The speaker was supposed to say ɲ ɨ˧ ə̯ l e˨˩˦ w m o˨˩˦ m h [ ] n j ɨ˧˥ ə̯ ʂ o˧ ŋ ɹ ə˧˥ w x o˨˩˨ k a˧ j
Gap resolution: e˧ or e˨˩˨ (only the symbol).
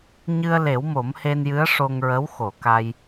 e˧